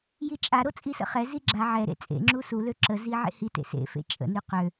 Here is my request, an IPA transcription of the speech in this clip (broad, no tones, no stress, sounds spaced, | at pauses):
j i t͡ʃʼ a ɾ o t͡sʼ i s ə̰ χ ɛ z i ɡ͡ǁ a ʕ ɛ ɾ ḛ t͡sʼ ḛ ŋ͡ǁ u s u l ø ǁ ə z i ʕ ḛ h i t ḛ s ḛ f ḛ t͡ʃʼ ə̰ n y q ø